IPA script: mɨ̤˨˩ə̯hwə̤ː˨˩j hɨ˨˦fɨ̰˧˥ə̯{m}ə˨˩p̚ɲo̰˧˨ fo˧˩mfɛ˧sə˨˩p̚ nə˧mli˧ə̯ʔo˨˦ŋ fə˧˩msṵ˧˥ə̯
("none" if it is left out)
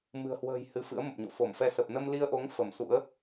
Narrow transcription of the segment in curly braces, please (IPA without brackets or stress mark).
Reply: m